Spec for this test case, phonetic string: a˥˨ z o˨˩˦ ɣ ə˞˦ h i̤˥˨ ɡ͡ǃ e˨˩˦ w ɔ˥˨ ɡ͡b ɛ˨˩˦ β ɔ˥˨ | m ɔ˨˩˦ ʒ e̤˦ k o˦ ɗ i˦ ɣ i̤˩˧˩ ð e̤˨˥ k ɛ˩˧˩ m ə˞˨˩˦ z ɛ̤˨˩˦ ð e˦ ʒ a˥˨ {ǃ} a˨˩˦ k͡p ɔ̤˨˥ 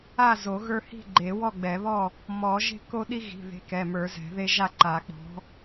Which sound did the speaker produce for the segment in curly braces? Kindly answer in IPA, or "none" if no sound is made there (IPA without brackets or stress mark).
ǃ